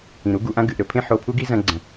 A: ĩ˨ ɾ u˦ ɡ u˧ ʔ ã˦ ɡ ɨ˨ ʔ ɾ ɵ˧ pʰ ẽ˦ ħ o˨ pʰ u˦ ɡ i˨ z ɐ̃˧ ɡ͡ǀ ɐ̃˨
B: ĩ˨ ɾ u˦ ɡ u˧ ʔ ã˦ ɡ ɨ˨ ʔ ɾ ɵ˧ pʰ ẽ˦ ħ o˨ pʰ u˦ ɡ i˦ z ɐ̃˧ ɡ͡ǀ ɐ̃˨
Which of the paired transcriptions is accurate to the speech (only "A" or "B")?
B